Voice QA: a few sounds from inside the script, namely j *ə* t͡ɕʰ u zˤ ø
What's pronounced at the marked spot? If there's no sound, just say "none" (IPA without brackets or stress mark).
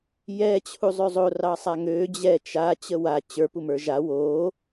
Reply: ɛ